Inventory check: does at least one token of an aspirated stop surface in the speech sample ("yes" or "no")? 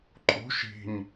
no